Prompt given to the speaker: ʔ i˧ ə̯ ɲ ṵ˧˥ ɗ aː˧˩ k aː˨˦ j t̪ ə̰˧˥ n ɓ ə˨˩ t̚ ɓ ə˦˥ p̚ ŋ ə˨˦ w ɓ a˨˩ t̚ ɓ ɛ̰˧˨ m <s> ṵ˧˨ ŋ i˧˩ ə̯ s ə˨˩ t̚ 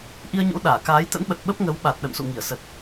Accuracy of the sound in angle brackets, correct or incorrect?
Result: correct